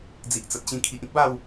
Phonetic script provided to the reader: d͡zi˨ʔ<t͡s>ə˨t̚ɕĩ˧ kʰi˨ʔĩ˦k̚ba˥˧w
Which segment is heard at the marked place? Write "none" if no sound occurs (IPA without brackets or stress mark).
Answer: t͡s